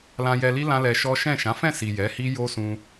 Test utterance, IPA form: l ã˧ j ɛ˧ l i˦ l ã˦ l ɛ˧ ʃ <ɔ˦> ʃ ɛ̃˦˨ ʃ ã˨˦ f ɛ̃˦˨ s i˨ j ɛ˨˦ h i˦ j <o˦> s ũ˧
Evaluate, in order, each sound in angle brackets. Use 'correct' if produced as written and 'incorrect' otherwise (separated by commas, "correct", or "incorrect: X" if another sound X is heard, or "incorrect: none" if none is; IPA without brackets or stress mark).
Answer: correct, correct